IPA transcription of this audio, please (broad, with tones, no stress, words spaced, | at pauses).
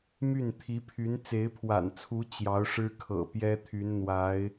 my˥˩n t̪ʰi˧˥pʰy˧˥n t͡se˧˥ɪ̯pʰwa̰˨˩nt͡sʰu˧˥ t͡ɕjɑ˧˥ʊ̯ʂɻ̩˥kʰɤ̰˨˩ pjɛ˥t̪ʰy˧˥n n̪wa˧˥ɪ̯